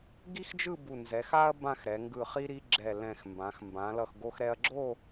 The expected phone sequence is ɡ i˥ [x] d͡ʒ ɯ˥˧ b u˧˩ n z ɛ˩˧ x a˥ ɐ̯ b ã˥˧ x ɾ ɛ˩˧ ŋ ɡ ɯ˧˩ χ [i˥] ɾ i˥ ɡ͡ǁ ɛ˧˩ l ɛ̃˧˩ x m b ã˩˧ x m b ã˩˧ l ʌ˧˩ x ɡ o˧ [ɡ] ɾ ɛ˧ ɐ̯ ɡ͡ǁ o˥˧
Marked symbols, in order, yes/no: yes, yes, no

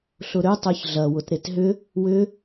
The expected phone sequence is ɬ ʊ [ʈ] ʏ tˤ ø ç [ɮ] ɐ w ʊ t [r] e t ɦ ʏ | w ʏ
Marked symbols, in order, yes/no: no, yes, no

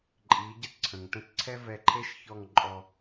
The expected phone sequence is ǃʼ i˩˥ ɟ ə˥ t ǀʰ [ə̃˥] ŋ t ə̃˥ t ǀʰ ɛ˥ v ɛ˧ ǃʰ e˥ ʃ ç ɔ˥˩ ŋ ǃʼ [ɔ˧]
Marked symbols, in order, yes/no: no, yes

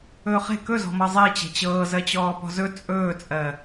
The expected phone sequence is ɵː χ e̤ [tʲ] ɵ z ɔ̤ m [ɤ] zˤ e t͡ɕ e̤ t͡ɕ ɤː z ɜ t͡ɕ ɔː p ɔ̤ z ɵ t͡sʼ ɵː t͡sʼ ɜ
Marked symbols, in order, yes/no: no, yes

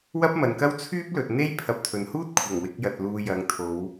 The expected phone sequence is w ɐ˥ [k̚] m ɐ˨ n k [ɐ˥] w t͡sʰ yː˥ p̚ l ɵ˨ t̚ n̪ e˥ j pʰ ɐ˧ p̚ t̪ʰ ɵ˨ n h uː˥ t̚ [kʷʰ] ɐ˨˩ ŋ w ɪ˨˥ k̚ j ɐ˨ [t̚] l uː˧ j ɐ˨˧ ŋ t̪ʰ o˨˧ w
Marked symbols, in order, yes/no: no, yes, yes, yes

